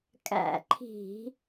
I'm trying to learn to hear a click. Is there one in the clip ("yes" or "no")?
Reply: yes